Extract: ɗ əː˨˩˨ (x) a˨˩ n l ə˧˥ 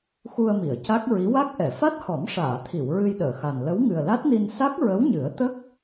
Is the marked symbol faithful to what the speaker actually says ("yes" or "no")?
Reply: yes